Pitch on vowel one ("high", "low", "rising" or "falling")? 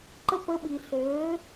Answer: high